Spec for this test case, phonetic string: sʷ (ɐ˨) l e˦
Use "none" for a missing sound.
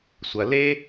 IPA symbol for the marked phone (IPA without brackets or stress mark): ɐ˨